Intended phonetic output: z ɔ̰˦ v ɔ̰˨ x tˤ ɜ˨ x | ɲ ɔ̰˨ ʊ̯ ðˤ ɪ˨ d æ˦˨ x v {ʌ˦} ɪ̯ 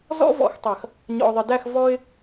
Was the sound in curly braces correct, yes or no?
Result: no